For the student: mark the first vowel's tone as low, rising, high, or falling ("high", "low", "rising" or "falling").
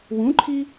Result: rising